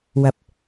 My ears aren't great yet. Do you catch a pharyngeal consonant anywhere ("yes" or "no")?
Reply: no